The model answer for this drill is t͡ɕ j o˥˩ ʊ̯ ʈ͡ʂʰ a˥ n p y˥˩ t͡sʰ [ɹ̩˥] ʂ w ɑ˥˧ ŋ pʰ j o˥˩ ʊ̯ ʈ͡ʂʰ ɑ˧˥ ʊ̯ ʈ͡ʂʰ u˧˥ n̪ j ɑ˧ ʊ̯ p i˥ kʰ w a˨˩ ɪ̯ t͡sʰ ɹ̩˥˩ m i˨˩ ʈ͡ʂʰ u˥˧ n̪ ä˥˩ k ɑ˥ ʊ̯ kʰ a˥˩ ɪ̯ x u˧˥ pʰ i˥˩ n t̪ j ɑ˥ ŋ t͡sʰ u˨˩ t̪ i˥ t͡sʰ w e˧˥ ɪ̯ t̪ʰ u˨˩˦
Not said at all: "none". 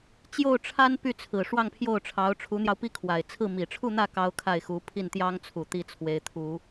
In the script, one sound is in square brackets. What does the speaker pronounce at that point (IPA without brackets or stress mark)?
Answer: ɹ̩˨˩